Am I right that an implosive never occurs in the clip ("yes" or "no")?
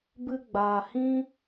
yes